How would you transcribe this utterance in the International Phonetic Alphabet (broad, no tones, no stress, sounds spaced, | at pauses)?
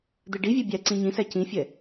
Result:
d̪ ɨ ɖ i vʲ ɛ bʲ æ ǀ ĩ ɲ ĩ s æ c ĩ fʲ ɛ